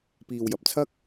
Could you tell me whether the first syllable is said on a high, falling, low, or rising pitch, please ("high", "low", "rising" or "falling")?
low